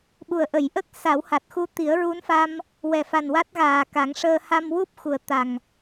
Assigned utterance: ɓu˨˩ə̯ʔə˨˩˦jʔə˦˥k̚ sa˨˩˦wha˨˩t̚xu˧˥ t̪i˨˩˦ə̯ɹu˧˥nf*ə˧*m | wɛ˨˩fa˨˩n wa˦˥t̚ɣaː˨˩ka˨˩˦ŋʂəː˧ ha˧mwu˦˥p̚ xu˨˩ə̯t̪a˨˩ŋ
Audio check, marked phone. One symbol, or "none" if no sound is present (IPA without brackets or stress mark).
a˧